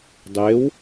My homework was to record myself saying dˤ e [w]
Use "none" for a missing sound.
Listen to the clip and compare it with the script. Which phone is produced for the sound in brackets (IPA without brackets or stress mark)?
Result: w